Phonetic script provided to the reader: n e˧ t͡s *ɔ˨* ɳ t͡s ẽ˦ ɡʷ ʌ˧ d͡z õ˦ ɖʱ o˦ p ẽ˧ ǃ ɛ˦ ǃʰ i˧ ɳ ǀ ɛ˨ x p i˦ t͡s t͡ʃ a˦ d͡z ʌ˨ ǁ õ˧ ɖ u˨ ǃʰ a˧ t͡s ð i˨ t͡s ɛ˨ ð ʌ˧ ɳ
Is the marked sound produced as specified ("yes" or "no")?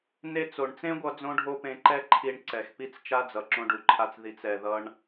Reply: no